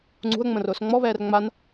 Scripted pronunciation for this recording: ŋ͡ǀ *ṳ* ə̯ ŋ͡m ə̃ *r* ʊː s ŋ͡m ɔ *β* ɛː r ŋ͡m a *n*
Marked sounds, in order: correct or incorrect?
correct, correct, correct, correct

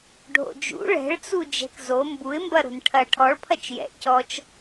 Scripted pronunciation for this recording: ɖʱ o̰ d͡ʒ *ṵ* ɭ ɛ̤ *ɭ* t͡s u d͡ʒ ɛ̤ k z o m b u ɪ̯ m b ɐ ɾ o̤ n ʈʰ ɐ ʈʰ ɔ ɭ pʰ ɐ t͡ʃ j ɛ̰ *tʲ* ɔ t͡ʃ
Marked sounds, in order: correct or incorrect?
correct, correct, incorrect

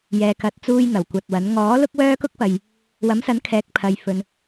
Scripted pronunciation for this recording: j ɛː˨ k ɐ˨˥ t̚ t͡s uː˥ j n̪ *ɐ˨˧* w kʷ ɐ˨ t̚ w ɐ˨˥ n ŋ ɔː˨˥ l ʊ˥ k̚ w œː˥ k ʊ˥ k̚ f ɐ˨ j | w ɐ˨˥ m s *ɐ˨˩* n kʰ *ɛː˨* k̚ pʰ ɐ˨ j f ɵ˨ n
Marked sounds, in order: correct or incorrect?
incorrect, incorrect, incorrect

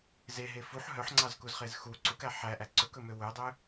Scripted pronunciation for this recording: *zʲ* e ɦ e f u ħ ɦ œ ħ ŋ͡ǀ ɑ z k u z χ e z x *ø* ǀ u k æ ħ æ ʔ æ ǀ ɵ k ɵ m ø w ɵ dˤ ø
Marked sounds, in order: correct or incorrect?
incorrect, incorrect

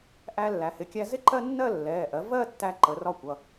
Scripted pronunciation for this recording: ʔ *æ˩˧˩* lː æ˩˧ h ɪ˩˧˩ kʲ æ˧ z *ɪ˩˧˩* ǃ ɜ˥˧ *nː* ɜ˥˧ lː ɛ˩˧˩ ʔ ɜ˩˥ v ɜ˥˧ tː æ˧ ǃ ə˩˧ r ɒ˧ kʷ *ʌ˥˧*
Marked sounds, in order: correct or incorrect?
incorrect, incorrect, correct, incorrect

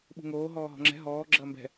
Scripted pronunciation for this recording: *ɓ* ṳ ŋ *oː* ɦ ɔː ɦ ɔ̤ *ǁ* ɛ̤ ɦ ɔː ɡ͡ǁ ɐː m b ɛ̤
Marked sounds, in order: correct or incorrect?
correct, correct, incorrect

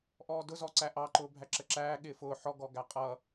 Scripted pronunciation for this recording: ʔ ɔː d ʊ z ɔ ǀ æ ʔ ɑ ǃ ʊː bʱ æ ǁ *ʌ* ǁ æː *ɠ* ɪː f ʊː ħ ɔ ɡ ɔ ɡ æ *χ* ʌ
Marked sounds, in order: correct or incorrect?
incorrect, correct, incorrect

